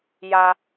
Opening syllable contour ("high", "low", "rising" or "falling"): high